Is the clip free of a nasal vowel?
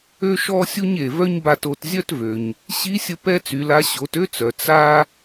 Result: yes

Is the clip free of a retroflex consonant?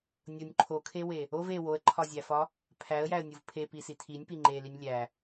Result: yes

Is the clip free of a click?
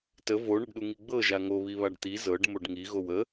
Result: yes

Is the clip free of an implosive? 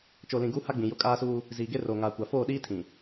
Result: no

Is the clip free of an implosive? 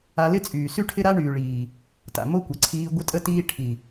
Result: yes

